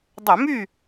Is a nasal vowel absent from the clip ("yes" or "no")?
yes